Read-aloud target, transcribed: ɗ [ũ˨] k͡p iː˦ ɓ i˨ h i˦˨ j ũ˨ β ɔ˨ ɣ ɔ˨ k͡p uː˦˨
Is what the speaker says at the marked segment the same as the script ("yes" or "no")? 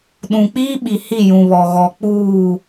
yes